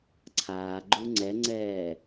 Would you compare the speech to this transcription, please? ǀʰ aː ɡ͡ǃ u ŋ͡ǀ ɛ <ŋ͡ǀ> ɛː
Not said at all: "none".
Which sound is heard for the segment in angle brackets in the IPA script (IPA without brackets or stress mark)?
ŋ͡ǀ